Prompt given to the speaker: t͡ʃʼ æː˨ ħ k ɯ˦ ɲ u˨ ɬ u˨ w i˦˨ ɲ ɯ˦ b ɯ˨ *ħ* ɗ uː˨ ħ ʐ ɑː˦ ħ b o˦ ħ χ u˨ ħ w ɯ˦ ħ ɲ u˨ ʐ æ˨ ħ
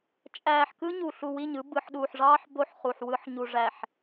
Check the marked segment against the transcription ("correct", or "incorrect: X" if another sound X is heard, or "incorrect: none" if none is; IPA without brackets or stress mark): correct